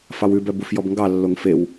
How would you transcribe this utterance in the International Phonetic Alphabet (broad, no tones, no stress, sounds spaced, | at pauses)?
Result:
f ɑ w ʉ b œ b u f j ɔ b ŋ ɡ ɑ lː o ŋ f e w